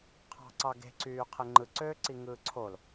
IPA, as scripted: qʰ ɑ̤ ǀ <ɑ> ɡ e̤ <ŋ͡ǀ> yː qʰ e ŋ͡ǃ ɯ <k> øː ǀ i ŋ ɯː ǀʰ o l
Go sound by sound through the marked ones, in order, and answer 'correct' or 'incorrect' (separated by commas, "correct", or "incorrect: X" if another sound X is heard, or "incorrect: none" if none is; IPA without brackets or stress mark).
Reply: correct, incorrect: ǀ, incorrect: ǀ